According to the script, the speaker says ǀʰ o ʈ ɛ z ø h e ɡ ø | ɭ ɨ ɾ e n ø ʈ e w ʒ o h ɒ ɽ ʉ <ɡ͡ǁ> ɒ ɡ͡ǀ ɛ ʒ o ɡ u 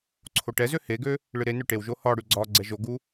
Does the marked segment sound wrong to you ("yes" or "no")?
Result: yes